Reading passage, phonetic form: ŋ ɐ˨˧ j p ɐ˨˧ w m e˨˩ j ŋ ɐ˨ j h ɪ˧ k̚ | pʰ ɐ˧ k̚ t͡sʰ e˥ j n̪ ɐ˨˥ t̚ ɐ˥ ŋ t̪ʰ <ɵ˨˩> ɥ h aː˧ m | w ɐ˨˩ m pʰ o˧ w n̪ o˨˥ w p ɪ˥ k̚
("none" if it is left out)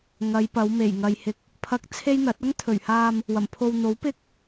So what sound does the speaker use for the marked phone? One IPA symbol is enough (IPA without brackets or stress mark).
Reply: ɵ˨˩